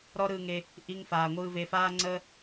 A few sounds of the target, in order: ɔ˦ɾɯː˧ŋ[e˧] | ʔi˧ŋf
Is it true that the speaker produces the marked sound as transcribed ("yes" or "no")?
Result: yes